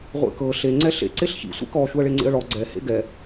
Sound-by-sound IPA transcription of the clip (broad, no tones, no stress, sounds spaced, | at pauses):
ʁʷ ḛ k ɤ ɬ e ŋ͡ǀ ɛ ɬ ḛ ǀ e ɬ ç ḭ sʷ ḭ k ɔ ʃ u ə̯ ɭ e ŋ͡ǀ ḛ ə̯ ɭ ɔ ɡ͡ǀ ɛ h ḛ ɡ ɛ